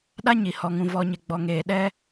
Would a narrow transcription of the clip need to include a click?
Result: no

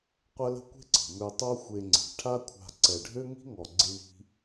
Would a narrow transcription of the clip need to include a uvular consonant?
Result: yes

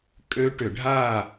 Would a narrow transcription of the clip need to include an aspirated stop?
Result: no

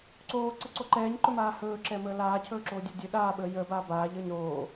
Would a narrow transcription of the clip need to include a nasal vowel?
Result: no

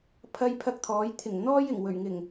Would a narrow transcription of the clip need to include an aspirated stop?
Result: yes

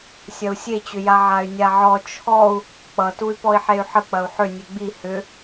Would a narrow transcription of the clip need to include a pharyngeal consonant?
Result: yes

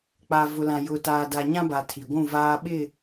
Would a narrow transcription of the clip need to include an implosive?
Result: yes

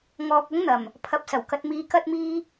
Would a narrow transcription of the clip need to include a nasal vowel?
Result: no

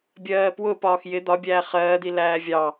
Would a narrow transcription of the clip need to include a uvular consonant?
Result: yes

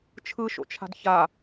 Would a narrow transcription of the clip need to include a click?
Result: no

